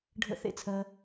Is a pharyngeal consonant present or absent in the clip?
absent